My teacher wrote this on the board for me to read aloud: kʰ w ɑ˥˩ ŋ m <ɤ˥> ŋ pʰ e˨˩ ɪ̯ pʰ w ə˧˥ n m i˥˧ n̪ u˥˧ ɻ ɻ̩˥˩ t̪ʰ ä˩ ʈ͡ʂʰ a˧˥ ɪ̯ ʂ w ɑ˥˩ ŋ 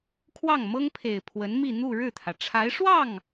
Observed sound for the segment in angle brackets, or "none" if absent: ɤ˥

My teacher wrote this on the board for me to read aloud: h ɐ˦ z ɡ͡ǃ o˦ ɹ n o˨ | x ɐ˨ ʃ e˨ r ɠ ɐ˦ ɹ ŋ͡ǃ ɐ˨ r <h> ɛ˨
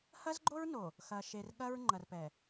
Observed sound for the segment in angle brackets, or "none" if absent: p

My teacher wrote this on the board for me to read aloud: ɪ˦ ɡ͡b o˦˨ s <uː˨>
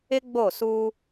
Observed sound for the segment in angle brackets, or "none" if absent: uː˦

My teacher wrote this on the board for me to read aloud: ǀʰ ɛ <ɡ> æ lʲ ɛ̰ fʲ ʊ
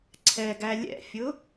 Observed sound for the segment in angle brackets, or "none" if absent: ɡ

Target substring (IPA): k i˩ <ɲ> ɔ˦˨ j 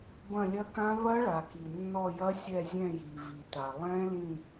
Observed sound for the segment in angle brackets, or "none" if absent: nː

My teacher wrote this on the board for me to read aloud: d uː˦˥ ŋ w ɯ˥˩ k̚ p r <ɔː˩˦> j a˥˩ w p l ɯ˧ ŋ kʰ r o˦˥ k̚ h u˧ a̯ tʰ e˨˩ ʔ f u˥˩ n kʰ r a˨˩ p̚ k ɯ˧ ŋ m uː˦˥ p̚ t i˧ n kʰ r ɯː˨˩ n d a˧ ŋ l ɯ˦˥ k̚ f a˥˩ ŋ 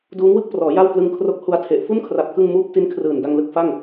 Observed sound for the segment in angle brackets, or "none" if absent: ɔː˩˦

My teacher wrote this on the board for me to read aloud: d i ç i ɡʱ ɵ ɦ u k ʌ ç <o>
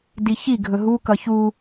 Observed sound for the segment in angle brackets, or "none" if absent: u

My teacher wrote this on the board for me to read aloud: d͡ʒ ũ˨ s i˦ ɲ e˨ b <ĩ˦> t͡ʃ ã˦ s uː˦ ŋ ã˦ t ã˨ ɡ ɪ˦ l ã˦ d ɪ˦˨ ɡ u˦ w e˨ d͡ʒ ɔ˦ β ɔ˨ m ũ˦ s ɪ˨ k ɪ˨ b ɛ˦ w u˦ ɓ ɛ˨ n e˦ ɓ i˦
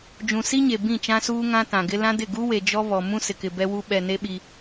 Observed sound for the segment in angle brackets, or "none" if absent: ĩ˦˨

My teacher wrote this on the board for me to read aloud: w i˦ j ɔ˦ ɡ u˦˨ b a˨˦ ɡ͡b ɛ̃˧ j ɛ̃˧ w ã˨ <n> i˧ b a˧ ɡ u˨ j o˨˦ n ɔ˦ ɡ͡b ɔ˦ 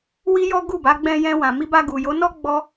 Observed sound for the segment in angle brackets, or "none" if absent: m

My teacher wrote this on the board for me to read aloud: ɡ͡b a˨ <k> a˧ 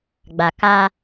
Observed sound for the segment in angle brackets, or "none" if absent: k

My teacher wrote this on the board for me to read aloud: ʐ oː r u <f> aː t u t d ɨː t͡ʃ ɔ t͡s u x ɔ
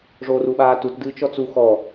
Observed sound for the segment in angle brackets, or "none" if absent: ɓ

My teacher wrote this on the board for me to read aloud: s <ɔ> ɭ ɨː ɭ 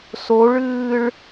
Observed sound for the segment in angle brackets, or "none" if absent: o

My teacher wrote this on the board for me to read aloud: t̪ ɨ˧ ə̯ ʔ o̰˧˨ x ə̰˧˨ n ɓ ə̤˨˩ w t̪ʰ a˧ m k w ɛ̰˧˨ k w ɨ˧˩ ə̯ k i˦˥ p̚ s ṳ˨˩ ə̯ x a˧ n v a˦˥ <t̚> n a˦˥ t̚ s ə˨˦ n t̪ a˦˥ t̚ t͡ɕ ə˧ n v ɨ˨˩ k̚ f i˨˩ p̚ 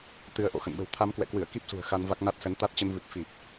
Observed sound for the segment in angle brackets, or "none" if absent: k̚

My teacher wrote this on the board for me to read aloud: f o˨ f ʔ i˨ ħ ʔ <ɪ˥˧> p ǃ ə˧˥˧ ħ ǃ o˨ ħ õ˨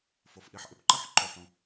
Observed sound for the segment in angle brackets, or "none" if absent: ɪ˨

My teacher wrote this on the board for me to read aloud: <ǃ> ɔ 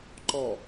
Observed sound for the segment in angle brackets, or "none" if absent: ǃ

